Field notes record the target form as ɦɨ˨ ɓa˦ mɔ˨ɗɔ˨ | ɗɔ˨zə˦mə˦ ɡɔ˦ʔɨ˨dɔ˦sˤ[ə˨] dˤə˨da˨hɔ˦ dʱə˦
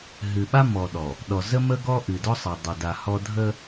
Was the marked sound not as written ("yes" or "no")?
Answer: no